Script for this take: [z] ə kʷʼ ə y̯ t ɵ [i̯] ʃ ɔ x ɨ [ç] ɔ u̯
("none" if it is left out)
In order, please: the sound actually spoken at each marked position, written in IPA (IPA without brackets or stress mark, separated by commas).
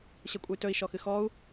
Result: ɕ, i̯, x